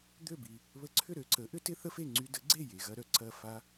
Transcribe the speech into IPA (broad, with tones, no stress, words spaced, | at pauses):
d̪ø˥˩bi˩ | βə˧ǀʰʏ˥˩ɾø˧ǀə˩˥ ʔʏ˥tɪ˥θə˥fe˥˩ ŋ͡ǀy˧də˩˥ɡ͡ǀe˥˩ je˩ɣɐ˧ɾœ˩ ǀɐ˥˩fa˥